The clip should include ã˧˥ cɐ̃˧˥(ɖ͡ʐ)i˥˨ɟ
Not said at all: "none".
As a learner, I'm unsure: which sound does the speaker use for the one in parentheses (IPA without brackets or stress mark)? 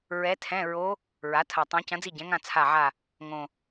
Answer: d͡z